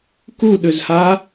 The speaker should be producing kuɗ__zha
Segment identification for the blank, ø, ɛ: ø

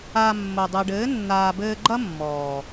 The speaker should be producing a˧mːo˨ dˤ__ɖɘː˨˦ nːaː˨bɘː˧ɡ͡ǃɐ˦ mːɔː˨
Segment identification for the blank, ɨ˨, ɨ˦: ɨ˨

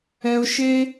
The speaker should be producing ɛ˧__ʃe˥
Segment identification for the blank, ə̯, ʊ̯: ʊ̯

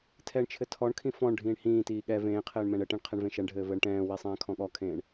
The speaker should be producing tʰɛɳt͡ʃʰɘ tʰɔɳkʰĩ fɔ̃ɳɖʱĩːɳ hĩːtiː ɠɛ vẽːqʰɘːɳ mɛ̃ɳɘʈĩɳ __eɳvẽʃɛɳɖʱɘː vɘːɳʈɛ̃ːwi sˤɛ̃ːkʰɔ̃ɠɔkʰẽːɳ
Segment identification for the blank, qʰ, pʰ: qʰ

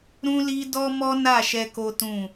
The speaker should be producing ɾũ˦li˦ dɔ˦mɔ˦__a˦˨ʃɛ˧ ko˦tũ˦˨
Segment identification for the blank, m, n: n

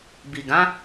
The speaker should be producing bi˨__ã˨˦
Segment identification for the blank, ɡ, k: ɡ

